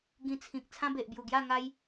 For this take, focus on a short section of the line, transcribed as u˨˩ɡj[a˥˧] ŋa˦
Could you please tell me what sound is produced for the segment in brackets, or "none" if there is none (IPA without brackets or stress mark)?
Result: a˥˧